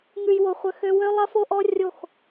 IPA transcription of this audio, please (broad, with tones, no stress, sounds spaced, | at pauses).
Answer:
ŋ ʉ˨ j w o˨ χʷ ə˨ x ø˧ w ø˦ lˠ ɐ˦ f o˦ ʔ ɔ˦ rʲ o˦˨ x